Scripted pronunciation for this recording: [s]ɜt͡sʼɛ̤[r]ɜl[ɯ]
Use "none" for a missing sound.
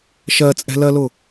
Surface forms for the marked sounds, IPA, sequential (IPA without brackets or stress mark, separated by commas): ʃ, l, ʊ